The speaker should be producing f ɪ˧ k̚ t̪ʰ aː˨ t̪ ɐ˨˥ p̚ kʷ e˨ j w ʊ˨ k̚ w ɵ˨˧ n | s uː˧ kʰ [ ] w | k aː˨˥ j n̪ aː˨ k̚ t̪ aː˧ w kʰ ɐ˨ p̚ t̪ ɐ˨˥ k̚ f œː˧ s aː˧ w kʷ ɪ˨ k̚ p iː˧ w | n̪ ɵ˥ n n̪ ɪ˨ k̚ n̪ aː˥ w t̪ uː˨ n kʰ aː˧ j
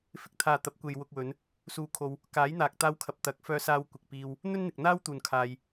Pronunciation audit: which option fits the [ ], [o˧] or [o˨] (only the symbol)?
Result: o˧